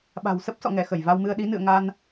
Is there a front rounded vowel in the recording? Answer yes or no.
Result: no